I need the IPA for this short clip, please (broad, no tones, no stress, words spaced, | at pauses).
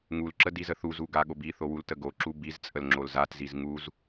ŋulǁə dizəθuzu ɡaɠobiθo wultəɡoǁu bizt͡sʼəl ŋ͡ǁolzatziz ŋuz